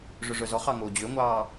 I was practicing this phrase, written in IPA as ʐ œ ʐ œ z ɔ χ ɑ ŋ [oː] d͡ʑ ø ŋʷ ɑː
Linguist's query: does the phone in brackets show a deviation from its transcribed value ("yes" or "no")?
no